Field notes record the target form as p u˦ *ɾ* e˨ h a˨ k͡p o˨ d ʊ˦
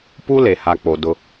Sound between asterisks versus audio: incorrect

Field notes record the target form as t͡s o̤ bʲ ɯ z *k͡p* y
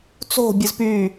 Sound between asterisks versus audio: incorrect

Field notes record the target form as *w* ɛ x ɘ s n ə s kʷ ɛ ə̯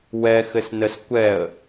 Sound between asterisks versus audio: correct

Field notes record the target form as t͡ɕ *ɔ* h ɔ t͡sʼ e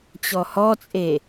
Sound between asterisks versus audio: correct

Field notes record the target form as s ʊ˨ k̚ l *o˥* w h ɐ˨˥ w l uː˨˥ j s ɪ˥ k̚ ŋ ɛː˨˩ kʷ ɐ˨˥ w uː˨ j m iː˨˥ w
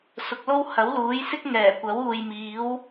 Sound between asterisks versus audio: correct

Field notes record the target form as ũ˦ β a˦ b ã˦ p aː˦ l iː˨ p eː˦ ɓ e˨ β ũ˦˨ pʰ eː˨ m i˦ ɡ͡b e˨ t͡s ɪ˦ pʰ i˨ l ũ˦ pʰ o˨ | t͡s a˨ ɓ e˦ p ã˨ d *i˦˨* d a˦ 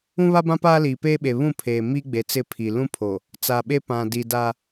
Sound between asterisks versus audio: incorrect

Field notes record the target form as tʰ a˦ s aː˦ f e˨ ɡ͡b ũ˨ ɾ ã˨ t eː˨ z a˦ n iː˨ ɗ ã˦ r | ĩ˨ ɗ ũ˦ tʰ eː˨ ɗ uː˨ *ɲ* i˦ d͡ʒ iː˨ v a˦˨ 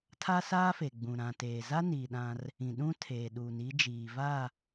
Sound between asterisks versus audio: incorrect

